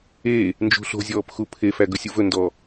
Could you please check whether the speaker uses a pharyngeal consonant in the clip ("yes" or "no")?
no